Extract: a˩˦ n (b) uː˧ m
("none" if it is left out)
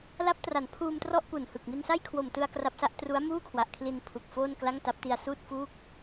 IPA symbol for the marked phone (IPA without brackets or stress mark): pʰ